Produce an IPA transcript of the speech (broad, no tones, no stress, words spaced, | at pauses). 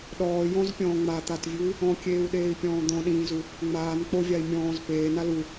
ɗɔː jɔ̃zpʲɔ̃ː ŋ͡mat̪atvʲui̯ | ɔ̃kʲeːu̯ɗeːi̯pʲɔ̃ː d̪ɔ̃ɗĩːzu | ŋ͡maːn k͡povʲai̯ mʲɔ̃ːz peːna lu